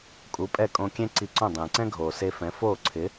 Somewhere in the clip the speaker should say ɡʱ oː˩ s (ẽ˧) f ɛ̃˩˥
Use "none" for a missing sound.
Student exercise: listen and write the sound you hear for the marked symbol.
e˧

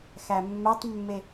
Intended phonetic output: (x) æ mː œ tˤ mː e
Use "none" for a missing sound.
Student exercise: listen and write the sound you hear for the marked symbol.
x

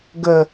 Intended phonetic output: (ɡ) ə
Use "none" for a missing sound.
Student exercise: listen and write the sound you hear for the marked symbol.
ɡ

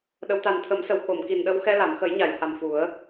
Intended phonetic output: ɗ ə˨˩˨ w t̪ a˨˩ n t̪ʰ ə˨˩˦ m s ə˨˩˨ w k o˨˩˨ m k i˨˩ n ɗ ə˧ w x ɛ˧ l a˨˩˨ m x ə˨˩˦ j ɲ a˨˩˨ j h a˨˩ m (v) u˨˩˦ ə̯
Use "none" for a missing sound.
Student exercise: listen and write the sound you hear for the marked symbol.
f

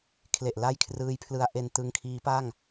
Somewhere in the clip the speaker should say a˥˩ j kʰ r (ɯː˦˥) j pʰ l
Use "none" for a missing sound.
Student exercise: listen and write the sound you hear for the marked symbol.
ɯː˦˥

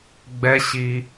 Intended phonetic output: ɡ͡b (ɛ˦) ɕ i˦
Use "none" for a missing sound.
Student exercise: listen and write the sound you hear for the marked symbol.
ɛ˦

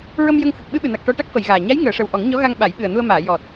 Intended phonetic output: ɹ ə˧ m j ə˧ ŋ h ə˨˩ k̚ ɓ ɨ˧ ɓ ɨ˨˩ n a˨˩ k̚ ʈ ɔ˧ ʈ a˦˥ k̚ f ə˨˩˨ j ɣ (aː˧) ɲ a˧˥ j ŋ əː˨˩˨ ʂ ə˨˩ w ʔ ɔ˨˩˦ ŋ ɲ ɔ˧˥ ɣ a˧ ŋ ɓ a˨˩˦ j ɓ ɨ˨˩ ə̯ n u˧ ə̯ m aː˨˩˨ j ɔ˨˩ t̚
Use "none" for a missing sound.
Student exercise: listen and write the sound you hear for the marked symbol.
aː˨˩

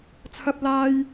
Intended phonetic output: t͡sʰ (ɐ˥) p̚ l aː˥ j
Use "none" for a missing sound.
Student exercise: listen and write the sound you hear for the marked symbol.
ɐ˥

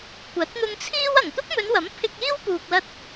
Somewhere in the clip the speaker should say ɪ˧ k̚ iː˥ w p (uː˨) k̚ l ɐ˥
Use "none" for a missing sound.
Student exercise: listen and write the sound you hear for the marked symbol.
uː˨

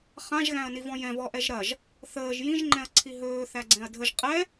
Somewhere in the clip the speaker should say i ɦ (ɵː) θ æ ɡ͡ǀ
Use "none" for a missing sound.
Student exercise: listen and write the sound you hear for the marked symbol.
ɵː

